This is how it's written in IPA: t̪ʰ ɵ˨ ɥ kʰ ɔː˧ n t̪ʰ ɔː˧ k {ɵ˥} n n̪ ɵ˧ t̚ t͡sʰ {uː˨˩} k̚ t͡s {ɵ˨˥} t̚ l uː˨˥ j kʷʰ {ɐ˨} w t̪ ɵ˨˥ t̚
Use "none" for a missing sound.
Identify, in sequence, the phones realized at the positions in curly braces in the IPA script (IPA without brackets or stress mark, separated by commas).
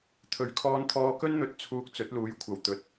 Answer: ɵ˥, uː˧, ɵ˨˥, ɐ˨